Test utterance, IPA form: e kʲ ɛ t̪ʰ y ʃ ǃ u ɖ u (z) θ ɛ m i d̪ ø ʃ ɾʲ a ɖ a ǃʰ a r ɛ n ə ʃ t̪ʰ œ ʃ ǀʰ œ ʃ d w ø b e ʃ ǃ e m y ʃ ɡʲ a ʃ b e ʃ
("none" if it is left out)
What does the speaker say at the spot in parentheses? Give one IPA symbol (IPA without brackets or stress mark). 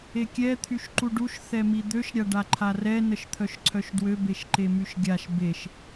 ʃ